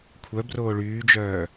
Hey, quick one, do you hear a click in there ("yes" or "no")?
no